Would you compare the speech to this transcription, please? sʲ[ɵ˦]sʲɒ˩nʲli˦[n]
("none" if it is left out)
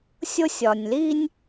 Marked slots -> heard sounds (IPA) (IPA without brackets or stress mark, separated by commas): o˦, nʲ